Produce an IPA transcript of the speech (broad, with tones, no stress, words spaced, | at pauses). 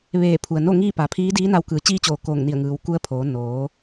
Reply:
ʋeː˧˩pʰu˩ə̯no˥˨ŋiː˥˨ pa˩˧pʰiː˧˥diː˧˥na˧w kɯː˩˧t͡ɕiː˧t͡ɕoː˩ koː˧˩ŋni˧˩ə̯ ŋɯː˩˧wku˧˥ə̯pʰoː˩˧ noː˩˧